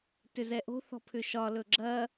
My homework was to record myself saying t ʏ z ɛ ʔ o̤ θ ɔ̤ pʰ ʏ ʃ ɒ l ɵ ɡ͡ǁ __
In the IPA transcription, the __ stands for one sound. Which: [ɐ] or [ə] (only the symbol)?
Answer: ɐ